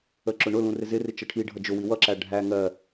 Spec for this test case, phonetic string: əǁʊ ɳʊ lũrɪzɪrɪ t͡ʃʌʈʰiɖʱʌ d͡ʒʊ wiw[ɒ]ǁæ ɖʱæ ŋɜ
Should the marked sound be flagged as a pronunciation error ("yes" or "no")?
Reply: yes